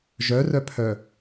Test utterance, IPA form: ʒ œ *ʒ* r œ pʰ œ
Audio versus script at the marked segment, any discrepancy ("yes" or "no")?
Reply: yes